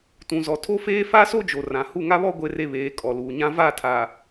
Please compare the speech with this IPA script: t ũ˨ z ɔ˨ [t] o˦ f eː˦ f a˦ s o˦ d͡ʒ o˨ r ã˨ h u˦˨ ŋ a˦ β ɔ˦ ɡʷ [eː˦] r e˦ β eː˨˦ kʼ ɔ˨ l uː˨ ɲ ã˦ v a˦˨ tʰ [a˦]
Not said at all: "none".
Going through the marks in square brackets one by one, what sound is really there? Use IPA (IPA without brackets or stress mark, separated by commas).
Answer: tʰ, e˦, a˨